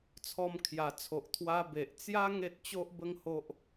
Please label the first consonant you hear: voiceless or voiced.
voiceless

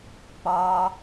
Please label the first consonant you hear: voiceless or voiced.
voiceless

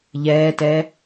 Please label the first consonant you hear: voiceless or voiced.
voiced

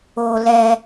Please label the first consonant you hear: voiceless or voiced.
voiced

